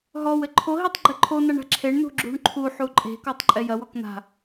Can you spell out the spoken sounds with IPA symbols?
ɦɔw ɘǃʰoɦitˤ ɡ͡ǃɘǃʰonaɳ a̤ǁʰeɳnṳ ɡ͡ǁṳɳǃʰuħu ǃʼe̤kɔtˤ ǃʼɛjɐwɔk n̪a̤

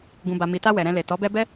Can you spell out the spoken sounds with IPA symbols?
ɡũ˨ba˨ mi˨ta˧ wɛ˨ɾɛ̃˧ le˨tɔ˨˦bɛ˦ bɛ˦

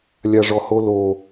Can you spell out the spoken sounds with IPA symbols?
lʲaʐɔholo

